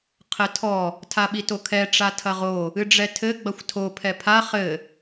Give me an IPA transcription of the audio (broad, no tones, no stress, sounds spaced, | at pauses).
qʰ ɘ tʰ ɔ | tʰ a ɓ i t o kʰ ɛ ʈ͡ʂ a tʰ ɐ ʁ o | ɨ ɖ͡ʐ ɛ tʰ ɘ ɡ͡b ɐ xʷ tʰ o pʰ ɛ pʰ a χ ɘ